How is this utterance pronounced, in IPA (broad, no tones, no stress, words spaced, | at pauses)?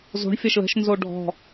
zo̤ɳ fʲɐʃlə̤ʃ nzoɖʱɔ̤